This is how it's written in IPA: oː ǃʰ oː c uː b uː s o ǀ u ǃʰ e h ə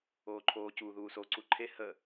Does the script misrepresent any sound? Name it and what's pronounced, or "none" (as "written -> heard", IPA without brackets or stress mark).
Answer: b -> ð